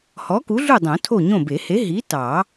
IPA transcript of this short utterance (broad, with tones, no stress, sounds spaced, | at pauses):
h ɔ˨˥ k u˨˥ ɮ u˥˨ dˤ õ˨˩˦ tʰ o˥˨ ɲ õ˥˨ b e˨˩˦ h e˨˥ ɦ i˨˥ t ɑ˨˩˦